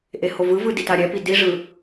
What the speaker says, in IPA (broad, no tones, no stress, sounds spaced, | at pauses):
ʔ e h o v ɯ v ɯ d i t a ɾʲ ɛ p i d i ʐ ɯ